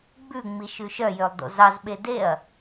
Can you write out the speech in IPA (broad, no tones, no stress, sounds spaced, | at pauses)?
ɡ͡b ʉ ŋ͡m i ʃ ʉ ʃ œ j ø lˠ d o̰ z ɑ z ɓ e d e ɐ̯